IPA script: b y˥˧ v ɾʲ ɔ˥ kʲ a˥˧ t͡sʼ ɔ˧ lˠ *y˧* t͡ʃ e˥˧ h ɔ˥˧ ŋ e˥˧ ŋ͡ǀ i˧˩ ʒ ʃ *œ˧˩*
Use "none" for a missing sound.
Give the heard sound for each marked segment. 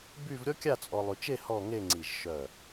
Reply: y˧, œ˧˩

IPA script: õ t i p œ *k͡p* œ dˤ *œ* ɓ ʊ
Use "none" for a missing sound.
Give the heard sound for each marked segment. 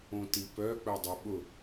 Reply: k͡p, œ

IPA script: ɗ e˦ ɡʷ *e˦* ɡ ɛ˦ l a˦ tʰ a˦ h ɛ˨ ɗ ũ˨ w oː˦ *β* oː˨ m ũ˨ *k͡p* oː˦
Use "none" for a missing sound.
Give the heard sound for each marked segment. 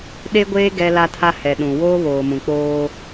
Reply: eː˦, β, k͡p

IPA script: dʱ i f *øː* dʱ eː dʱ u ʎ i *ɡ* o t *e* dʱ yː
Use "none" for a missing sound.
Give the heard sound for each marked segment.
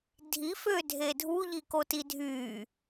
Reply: øː, k, i

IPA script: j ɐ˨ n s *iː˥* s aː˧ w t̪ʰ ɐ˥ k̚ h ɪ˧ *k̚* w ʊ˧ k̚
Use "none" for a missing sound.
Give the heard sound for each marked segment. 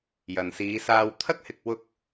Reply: iː˨˧, k̚

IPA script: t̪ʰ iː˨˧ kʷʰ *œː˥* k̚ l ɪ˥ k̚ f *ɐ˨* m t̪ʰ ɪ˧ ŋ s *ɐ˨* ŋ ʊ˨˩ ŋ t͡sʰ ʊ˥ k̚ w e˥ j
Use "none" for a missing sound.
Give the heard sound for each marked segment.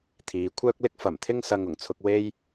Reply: œː˥, ɐ˨˩, ɐ˨

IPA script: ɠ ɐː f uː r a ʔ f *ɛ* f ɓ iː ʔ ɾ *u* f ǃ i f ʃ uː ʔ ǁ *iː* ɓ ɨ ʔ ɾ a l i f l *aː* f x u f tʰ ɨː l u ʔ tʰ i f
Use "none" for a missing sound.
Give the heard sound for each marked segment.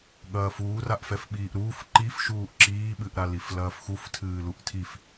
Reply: ɛ, uː, iː, ɐː

